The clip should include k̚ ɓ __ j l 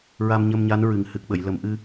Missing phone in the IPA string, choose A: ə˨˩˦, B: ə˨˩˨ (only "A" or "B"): B